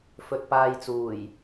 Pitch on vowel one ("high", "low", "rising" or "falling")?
rising